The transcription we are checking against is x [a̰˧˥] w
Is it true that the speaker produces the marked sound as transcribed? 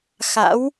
yes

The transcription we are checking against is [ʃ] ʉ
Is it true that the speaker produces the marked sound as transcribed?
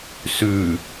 no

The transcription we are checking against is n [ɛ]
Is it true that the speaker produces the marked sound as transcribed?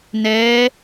yes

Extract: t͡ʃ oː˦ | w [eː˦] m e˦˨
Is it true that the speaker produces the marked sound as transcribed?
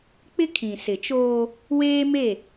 yes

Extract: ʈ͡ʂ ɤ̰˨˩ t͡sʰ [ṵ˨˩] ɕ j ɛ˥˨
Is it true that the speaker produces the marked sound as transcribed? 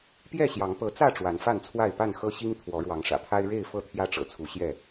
no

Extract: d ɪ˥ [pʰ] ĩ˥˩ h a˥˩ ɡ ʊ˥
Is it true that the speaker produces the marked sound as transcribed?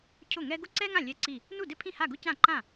yes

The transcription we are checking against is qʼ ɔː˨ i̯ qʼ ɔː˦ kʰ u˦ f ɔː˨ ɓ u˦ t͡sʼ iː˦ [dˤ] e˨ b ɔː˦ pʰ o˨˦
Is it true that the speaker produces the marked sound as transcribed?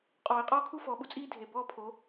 no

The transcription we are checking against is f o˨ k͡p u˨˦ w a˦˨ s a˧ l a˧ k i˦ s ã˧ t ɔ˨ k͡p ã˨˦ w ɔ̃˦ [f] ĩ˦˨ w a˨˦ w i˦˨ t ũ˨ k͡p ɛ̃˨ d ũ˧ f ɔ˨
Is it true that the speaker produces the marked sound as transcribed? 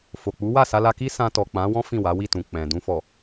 yes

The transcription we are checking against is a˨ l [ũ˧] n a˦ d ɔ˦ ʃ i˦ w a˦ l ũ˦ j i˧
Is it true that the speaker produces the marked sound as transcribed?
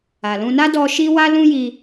yes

